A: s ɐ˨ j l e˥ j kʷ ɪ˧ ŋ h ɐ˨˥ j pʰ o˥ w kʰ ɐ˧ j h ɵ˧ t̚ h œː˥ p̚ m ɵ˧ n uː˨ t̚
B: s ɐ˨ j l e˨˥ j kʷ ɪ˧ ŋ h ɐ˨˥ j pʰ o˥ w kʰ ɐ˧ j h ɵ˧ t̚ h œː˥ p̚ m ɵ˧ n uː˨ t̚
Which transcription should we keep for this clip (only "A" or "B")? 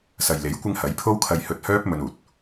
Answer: B